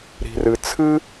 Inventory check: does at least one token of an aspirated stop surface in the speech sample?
yes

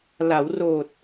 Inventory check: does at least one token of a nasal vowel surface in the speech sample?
no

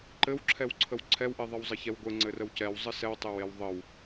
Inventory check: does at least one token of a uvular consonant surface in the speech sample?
no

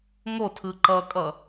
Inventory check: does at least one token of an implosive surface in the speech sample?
no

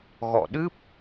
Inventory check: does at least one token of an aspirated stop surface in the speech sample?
no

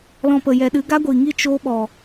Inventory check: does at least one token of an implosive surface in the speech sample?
yes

